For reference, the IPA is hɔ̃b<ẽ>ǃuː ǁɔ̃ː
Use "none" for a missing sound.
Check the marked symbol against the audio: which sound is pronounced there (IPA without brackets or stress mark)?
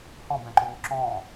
ɛ̃